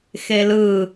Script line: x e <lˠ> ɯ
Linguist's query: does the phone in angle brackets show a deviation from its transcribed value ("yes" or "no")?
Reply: yes